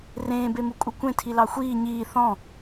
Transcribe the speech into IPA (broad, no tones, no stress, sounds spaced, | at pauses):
r ẽː b e m u kʼ u kʷ ẽ tʰ i l ɑ xʷ iː ɲ iː θ ɔ̃